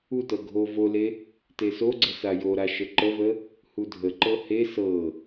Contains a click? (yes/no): yes